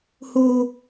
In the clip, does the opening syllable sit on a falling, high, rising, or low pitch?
high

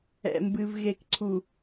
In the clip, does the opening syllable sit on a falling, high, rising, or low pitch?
low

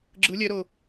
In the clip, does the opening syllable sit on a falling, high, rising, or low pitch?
rising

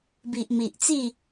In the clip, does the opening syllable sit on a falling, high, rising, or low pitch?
low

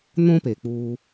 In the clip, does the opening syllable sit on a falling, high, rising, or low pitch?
high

